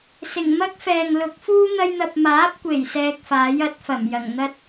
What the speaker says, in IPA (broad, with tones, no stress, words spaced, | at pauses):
sɪ˨˩ŋ mɐ˥k̚fɛː˨ŋlʊ˨˥k̚ fuː˥ n̪ɐ˧jn̪ɐ˨p̚ maː˨˥p̚kʷe˨˩j sɛː˧k̚faː˨˥jɐ˨˥t̚fɐ˨˩m jɐ˨˩ŋn̪ɐ˥t̚